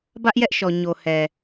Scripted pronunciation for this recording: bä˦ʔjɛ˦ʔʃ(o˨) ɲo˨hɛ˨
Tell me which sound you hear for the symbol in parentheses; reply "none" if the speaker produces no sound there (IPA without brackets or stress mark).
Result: ɔ˨